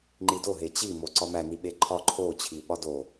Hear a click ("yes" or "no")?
yes